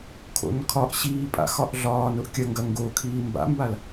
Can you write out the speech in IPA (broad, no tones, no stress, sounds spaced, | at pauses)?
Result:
kʰ o̰ n kʰ ɒ ʔ ɕ iː pʼ a̰ x ɒ ʔ ɮ ɒː n ʊ ʔ kʲ ɐ ŋ ɡ ɐ ŋ ɡ o kʰ iː m b a̰ m b a l